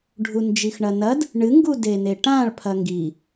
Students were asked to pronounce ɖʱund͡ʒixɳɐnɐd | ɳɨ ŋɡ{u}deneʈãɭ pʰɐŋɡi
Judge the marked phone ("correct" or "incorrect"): correct